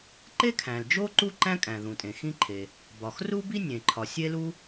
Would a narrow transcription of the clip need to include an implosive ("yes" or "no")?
no